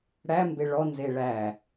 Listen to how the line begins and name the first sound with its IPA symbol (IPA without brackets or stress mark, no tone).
ɽ